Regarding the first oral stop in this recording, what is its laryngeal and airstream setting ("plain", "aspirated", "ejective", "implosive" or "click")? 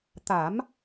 plain